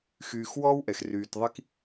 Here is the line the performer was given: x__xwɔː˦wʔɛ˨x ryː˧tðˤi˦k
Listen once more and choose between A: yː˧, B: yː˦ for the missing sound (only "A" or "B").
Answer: A